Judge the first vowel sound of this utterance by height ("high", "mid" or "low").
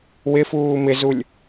high